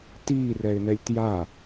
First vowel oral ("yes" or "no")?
yes